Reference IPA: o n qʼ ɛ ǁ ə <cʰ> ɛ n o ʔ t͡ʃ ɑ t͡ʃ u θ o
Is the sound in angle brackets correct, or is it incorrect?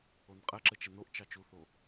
incorrect